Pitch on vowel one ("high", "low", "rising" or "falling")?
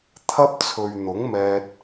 high